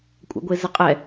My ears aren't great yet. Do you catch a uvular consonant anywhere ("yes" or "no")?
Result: yes